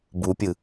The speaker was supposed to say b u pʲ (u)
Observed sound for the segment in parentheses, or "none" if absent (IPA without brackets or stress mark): ɯ